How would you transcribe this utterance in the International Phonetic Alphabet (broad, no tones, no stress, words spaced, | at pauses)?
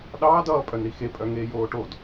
ɗɑːd ʌːpʼœnɾi xepʼœ ŋeːjoːʈod